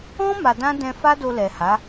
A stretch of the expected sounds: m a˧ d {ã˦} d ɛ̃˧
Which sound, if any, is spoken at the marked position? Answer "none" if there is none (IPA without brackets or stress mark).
ã˦